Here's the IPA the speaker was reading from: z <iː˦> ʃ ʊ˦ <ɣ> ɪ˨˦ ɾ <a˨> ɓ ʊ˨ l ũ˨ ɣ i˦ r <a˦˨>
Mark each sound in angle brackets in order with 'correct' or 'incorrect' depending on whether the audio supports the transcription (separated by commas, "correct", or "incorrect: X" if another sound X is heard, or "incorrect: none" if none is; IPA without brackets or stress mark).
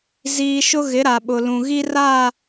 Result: correct, correct, correct, correct